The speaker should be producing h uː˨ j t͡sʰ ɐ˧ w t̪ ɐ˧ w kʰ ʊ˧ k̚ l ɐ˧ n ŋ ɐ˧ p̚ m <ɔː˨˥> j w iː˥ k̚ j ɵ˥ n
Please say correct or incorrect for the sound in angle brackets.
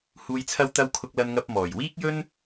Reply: incorrect